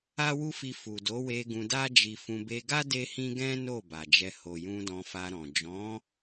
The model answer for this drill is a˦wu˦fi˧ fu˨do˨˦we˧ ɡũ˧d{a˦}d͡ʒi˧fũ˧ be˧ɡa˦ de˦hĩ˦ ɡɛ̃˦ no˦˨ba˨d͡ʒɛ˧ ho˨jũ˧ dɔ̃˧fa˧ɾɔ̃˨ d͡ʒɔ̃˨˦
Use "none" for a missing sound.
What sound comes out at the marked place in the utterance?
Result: a˦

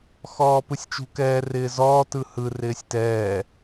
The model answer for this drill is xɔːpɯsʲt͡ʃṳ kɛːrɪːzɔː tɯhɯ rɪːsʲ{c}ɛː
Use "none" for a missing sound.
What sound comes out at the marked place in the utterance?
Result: t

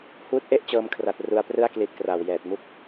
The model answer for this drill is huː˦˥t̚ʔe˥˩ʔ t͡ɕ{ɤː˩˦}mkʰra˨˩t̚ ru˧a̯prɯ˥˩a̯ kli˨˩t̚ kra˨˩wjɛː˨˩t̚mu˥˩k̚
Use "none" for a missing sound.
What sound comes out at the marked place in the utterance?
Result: ɤː˧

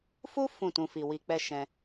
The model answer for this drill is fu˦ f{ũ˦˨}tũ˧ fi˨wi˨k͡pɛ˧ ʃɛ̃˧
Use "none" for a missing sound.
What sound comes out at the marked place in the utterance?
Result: ũ˦˨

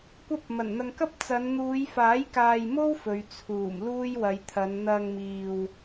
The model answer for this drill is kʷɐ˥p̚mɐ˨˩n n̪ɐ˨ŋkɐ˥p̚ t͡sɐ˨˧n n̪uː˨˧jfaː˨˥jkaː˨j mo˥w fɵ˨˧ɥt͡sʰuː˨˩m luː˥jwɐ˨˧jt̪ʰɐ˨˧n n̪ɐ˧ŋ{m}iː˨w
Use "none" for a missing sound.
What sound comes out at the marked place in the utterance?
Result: m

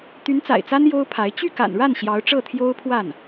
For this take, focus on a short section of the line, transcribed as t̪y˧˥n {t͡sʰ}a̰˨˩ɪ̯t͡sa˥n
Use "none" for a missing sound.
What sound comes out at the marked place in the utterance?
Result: t͡s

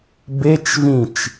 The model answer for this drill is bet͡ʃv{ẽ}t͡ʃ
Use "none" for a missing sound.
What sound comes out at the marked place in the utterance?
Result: ĩ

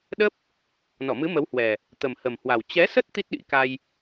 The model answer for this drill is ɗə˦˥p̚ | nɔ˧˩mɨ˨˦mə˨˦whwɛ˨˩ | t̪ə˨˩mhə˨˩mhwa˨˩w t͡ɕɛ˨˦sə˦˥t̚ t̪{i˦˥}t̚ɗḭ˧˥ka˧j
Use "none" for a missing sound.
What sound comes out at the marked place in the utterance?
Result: i˦˥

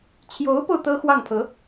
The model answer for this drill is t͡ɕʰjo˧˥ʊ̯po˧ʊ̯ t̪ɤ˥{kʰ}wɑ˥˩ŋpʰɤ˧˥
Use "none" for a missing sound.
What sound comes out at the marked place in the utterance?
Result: x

